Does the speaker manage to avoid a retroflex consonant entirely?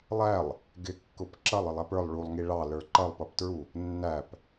no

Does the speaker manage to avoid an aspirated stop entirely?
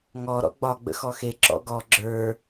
yes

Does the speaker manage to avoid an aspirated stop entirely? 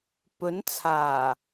no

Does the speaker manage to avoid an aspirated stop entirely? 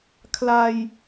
no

